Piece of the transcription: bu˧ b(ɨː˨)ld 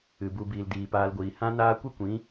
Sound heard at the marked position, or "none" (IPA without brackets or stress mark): iː˨